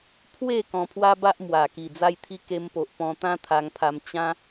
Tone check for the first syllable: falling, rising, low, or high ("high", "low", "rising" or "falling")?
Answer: falling